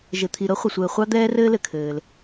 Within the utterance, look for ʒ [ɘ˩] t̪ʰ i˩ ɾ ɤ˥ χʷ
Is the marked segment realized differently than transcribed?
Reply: no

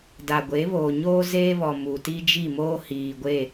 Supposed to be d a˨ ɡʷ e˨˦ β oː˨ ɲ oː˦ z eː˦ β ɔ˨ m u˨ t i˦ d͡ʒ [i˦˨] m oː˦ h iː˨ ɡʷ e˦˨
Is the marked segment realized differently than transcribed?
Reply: no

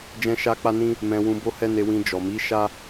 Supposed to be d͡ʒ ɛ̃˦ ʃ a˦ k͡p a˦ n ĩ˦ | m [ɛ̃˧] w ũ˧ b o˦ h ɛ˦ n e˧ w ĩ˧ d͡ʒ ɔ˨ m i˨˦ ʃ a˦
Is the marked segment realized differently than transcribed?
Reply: no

